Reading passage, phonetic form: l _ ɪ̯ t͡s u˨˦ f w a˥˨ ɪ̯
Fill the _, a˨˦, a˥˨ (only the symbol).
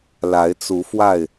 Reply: a˨˦